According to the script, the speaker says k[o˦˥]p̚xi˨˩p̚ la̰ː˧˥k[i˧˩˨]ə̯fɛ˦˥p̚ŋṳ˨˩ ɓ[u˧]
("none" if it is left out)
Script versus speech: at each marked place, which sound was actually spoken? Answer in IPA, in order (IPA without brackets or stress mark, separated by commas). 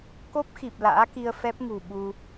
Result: o˦˥, i˧, u˧